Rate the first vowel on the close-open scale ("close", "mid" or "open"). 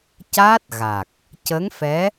open